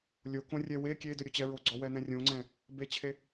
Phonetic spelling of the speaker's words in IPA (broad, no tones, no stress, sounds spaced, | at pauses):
lʲ o k õ rʲ ɛ w e kʲ e d ɵ ɾʲ o t͡ɕ ɛ ɹ o ɡ͡ǀ ɔ w ɛ n̪ ɛ̃ rʲ õ ŋ͡ǀ ɛ̃ | b e t͡ɕʰ e